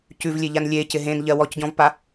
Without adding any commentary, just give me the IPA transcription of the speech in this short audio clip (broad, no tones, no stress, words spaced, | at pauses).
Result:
cʉvlʲe ʎanlʲe cɪɦẽnʎɜ wɔcɟɔ̃vpa